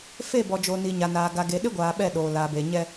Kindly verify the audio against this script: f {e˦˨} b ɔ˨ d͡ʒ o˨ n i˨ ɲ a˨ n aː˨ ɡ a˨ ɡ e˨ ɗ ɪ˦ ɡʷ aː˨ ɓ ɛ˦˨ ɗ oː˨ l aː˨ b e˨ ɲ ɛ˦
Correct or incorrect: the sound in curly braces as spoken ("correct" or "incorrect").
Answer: correct